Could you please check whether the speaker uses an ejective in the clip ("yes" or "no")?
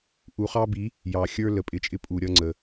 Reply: yes